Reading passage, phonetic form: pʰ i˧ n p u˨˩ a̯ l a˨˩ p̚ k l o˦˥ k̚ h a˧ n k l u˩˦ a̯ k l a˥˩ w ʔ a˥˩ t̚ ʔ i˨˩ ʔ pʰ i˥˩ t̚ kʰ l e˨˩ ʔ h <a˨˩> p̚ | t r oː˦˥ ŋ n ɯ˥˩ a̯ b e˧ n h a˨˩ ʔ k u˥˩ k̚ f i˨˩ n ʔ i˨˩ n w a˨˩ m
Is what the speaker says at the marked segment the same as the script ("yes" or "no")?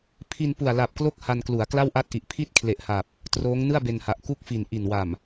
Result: yes